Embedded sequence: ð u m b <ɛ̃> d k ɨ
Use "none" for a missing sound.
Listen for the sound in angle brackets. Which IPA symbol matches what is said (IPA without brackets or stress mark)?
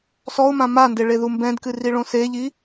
ɛ̃